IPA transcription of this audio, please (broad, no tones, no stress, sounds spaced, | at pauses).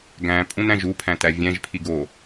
ɡ æ̃ pʼ ũ n æ̃ ʒ u pʰ æ̃ t æ vʲ æ̃ ʒ pʰ i ɡ o